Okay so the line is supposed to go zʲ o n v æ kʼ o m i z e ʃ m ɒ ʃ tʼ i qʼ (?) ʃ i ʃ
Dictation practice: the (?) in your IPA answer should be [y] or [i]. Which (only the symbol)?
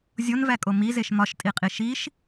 i